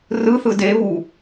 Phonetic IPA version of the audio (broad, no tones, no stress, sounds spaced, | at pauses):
r ɯ θ ɯ d e β u